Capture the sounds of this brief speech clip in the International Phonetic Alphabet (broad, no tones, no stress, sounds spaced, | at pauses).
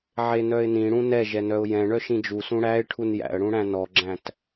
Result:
ʕ e n œ ɪ̯ n ĩ ɽ ũ n ɛ ʒ ɛ n œ ʊ̯ j ɛ̃ ɳ œ ʃ ĩ d͡ʒ u s ũ ɽ æ ɪ̯ ʈʰ u n j æ̰ ə̯ ɽ ũ ɽ æ̃ n ɔ ɡ͡ǁ æ̃ t